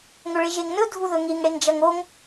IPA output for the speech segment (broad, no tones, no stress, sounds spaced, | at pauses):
ŋ ɵ ɭ e ʒ e ŋ n ɵ dʱ u ð ɵ ŋ i ŋ ɽ e ŋ d͡ʒ ɐ ŋ o ŋ